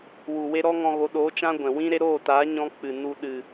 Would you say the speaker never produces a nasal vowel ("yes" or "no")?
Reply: no